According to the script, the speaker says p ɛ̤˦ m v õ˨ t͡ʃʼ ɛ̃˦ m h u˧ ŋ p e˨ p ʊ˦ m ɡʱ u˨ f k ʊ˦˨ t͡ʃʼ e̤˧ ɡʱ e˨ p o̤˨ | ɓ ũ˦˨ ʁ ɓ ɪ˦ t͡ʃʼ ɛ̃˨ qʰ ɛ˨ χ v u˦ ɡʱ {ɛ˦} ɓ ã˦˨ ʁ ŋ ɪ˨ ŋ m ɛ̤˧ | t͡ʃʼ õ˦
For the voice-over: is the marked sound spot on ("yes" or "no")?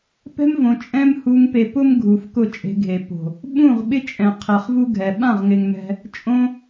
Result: no